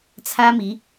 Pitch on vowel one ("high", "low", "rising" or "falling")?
high